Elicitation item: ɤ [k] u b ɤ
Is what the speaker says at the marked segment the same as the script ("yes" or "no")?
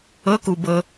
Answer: yes